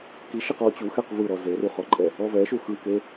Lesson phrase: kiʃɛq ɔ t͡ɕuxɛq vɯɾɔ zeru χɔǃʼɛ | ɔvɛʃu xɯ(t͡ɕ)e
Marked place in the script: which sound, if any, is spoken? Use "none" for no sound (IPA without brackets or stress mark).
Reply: k